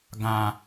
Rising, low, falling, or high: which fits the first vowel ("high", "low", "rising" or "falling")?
low